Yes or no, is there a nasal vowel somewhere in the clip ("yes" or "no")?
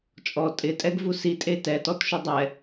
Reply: no